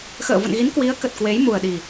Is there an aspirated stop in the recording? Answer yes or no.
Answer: no